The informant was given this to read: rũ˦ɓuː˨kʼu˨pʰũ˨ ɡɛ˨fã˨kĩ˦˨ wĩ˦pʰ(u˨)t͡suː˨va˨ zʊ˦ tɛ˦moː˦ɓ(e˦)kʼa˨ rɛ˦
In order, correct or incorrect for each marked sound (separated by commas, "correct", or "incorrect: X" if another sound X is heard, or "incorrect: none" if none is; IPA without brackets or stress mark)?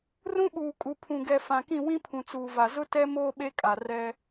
incorrect: ũ˨, correct